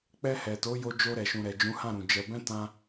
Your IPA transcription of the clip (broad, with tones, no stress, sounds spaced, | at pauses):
k͡p ɛ˧ h ɛ˨ t o˨˦ j o˧ d͡ʒ o˧ ɾ ɛ˨ ʃ ũ˨ ɾ ɛ˨ d͡ʒ ũ˨˦ h ã˦˨ ɾ ũ˨ d͡ʒ ɛ˧ b ɛ̃˦ t ã˦